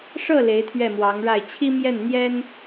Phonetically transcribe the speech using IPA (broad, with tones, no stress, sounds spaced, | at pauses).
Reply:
ʂ ɤ˥˩ l e˧˥ ɪ̯ t̪ʰ ɥ ɛ˥˩ m w ɑ˧˥ ŋ ɻ a˥˩ ɪ̯ t͡ɕʰ i˥ m j ɛ˥˩ n n̪ j ɛ˥ n